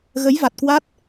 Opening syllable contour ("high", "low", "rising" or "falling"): rising